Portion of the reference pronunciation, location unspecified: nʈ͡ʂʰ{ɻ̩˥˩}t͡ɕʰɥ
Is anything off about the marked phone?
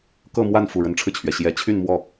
yes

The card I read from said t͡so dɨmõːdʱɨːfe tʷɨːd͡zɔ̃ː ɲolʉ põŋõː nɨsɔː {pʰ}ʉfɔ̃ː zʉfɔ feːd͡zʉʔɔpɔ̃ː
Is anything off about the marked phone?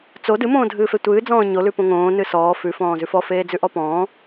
yes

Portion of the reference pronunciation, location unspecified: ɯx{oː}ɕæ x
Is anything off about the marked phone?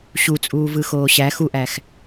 no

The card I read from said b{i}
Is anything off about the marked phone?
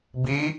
no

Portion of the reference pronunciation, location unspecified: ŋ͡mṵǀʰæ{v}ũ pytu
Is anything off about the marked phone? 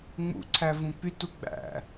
no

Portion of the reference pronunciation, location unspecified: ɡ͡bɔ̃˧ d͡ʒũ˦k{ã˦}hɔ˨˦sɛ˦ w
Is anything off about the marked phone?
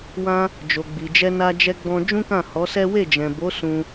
yes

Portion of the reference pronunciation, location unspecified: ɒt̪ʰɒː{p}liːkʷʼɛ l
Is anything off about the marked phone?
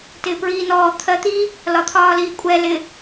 yes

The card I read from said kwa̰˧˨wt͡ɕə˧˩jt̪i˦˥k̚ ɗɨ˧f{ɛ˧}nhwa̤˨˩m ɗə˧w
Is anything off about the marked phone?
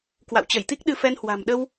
no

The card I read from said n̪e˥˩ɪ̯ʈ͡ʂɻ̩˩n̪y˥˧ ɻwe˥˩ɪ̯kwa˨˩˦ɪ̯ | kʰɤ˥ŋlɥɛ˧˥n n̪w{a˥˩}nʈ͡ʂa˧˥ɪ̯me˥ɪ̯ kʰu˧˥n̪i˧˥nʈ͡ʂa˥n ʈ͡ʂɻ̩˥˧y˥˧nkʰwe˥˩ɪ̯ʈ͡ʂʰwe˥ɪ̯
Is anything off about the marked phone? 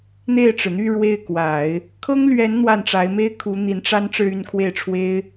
no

